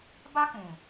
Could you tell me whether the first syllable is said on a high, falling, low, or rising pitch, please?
high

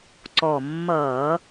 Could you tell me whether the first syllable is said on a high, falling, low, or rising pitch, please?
low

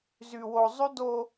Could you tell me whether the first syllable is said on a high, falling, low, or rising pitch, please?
low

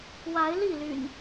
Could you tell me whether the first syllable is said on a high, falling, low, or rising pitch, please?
rising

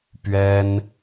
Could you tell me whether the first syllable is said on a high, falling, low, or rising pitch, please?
high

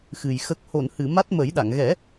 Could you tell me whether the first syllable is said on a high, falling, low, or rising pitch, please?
low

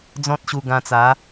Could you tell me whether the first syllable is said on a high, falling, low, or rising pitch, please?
high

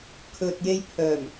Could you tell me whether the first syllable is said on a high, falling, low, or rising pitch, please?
low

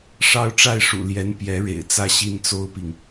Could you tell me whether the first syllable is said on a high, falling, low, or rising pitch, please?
falling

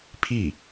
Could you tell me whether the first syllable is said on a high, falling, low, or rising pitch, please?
falling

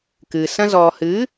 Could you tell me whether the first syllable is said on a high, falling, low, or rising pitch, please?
low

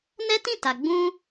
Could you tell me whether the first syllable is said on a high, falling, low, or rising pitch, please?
high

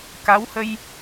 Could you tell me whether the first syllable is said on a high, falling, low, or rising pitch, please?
rising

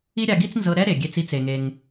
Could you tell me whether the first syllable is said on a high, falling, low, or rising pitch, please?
high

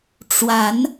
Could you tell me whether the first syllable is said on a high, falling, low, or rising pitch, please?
rising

